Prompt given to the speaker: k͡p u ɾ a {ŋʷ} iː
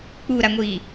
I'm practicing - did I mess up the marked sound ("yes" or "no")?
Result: no